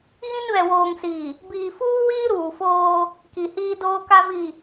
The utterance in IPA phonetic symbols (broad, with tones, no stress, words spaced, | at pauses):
ɣĩ˦nβɛ˨ woː˨ŋsiː˨ | biː˨fuː˦wiː˦ ɾuː˨foː˦ | ki˨hiː˦doː˦ka˦ vi˨